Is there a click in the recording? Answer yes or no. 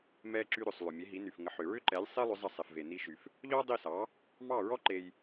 yes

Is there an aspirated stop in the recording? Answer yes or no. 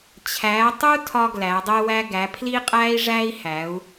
yes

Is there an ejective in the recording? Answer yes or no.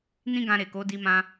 no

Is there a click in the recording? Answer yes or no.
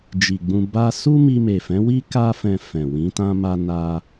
no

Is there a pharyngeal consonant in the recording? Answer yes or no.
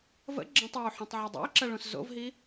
yes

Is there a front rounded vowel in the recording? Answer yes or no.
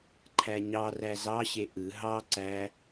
no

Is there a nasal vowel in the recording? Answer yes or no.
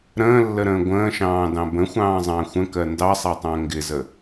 yes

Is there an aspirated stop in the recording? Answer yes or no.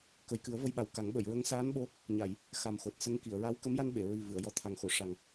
yes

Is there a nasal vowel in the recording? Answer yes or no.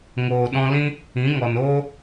yes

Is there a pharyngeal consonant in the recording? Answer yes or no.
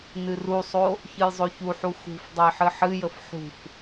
yes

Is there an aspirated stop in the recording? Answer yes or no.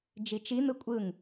no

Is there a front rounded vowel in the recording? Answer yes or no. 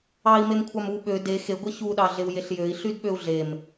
yes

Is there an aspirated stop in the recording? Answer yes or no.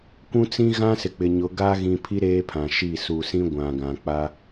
yes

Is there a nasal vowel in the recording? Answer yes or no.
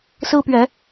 no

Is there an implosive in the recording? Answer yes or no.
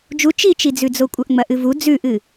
no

